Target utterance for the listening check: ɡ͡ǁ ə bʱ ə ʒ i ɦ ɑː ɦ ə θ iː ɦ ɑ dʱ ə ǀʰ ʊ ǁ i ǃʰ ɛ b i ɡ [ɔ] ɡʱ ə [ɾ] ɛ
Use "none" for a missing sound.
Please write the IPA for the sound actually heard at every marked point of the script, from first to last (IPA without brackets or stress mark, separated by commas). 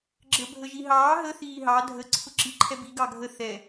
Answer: ɑ, θ